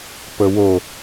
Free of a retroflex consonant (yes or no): yes